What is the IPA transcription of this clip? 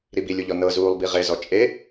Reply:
ɾ i b i lʲ u ʎ ɔ n ɤ z uː lˠ b i ʁ e z ɔ t͡ʃʼ e

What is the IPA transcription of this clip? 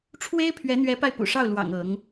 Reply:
ʈ͡ʂʰ w e˥ ɪ̯ pʰ ɥ ɛ˧˥ n̪ ɥ ɛ˧˥ p a˧ ɪ̯ p ṵ˨˩ ʂ ɑ˥˩ ʊ̯ l w ɑ̰˨˩ ŋ ɤ˧˥ ŋ

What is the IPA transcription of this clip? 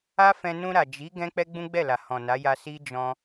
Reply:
a˦ f ɛ̃˧ n ũ˧ ɾ a˨ d͡ʒ i˨˦ ɡ ɛ̃˦ k͡p ɛ˦ ɡ͡b ũ˦ ɡ͡b ɛ˦˨ l a˨ h ɔ̃˨ n a˨˦ j a˧ s i˦ d͡ʒ ɔ̃˧

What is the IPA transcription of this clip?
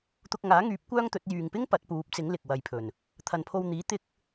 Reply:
t̪ ʊ˧ k̚ ŋ aː˨˥ ŋ yː˨˥ p̚ kʷ œː˥ ŋ t̪ ɵ˨˥ t̚ j yː˨ ŋ p ɪ˥ ŋ p ɐ˨˥ t̚ p uː˨˥ p̚ t͡s ɪ˨˥ ŋ l ɪ˨ k̚ w ɐ˧ j pʰ ɵ˨ n | t̪ʰ ɐ˨ n pʰ o˧ w n̪ iː˨˥ t̪ ɪ˧ k̚

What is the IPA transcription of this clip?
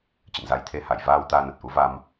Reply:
t͡ɕ ə̰˧˨ n z a˨˦ j t̪ʰ e˨˦ h a˧˩ j v aː˧ w t̪ aː˧ n ə˨˩ t̚ ʔ u˨˦ v a˧ m

